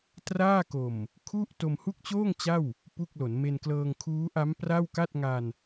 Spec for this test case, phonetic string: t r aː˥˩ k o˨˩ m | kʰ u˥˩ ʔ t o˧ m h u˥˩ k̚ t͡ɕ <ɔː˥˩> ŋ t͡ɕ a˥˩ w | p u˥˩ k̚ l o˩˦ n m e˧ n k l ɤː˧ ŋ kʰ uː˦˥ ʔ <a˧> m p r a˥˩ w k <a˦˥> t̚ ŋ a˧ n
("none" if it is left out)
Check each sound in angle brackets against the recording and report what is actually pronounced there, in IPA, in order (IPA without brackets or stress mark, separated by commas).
oː˥˩, a˦˥, a˥˩